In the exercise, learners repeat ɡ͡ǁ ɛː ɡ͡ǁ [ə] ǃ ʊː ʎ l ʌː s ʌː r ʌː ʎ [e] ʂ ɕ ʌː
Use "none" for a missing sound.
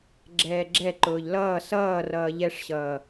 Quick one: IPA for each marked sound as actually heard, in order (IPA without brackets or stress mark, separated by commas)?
ɛ, ɛ